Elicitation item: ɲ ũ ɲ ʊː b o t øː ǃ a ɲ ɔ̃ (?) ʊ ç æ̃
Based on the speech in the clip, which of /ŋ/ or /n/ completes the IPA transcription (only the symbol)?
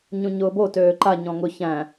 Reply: ŋ